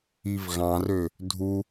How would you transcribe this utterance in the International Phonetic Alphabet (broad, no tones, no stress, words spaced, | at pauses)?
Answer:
ivɣɑ̃rø | dʱu